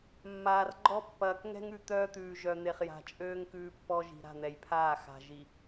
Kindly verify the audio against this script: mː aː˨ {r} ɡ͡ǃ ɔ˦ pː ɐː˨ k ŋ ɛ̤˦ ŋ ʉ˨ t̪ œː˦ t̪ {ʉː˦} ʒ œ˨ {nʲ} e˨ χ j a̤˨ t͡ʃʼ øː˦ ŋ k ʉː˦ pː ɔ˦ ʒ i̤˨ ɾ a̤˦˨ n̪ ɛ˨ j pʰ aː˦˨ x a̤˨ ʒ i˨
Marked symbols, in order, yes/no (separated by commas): yes, no, no